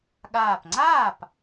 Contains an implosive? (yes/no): yes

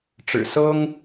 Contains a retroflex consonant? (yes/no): yes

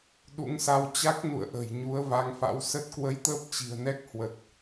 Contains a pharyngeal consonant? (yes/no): no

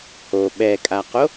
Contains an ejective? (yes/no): yes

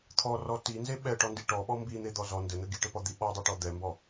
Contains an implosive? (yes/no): yes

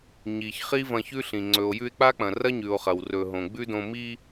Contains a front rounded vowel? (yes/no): no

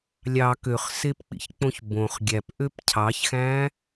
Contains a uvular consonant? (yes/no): yes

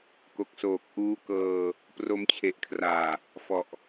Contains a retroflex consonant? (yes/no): no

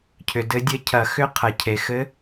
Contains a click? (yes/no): no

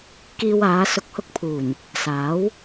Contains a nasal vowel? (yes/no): no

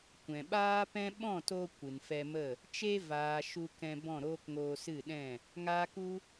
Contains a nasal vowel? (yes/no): yes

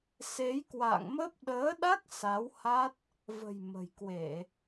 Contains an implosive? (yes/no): yes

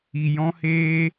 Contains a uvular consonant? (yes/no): no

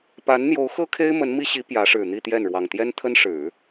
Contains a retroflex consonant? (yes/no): yes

